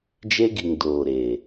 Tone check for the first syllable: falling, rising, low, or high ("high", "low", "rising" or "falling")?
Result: high